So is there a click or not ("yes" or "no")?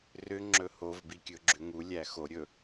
yes